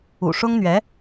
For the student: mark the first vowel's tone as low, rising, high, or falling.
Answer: low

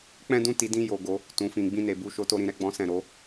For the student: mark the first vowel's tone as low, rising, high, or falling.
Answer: high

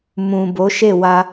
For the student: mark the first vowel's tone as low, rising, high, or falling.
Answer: low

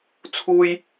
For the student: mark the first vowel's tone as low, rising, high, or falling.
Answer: high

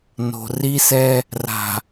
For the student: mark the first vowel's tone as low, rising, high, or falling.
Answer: low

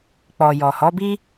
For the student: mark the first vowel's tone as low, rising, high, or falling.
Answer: low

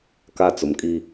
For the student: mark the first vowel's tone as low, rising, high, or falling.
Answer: high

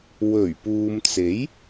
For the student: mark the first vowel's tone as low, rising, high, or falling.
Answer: low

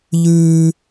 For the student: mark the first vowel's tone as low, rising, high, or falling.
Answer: high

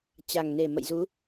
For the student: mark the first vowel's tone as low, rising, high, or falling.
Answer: low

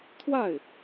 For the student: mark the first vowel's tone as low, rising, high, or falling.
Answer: falling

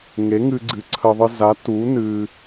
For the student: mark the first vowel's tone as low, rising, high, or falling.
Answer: rising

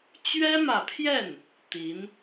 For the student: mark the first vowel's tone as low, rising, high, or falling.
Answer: high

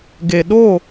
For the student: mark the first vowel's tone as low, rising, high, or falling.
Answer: low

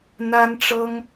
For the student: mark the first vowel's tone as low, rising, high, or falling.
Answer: high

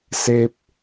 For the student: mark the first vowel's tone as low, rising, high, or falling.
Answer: low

